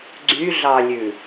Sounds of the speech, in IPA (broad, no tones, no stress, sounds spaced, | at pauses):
ɡ͡ǀ y ɮ ɑ lʲ ʉ